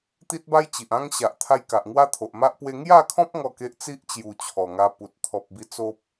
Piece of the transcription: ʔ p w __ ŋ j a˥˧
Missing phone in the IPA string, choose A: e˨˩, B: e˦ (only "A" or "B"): B